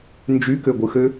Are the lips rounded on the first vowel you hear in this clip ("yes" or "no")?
yes